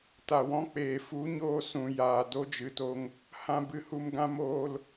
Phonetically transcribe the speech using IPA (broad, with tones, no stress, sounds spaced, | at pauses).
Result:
t a˨ w ɔ̃˧ k͡p eː˨ f u˨˦ ɲ oː˧ s ũ˨ j aː˨ d o˧ d͡ʒ ɨ˨ t o˧ ŋ | h ã˧ b ɨ˧ h u˧ m ɡ ã˦ m oː˧ l